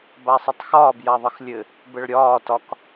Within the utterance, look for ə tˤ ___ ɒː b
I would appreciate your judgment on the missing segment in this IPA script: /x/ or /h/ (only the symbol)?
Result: x